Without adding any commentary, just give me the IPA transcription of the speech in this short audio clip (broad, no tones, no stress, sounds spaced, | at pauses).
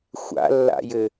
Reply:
xʷ a̰ lː a̰ j ɘ